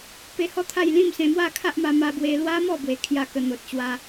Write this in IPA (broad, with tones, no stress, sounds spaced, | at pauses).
p e˧ h ɔ˦ t̪ʰ a˥˧ j l ĩ˥˧ m s ẽ˧ m w a˥˧ kʰ a˦ ʔ m a˧ m a˧ b w e˧ l w a˦ m ɔ˥˧ b w e˧ kʰ j a˥˧ k ə˧ n̪ o˨ t̚ ɕ w a˧